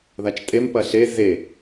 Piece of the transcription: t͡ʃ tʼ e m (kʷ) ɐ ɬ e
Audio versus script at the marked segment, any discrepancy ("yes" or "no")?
yes